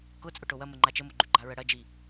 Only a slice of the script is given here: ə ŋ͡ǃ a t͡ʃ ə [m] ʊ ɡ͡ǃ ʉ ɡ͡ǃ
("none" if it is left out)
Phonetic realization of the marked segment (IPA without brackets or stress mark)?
m